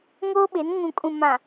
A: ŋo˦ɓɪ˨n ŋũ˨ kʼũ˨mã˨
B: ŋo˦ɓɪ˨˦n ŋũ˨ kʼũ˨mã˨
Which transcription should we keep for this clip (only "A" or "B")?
B